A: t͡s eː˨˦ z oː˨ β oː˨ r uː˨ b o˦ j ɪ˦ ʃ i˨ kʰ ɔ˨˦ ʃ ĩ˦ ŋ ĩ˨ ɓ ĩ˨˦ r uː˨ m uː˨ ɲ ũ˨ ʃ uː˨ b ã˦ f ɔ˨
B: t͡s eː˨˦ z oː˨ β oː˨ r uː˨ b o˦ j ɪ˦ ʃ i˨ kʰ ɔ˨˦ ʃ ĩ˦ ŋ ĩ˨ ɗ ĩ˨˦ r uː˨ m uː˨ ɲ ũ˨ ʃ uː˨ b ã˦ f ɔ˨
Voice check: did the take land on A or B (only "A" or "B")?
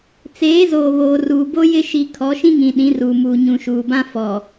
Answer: B